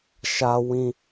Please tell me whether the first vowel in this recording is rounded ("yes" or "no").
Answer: no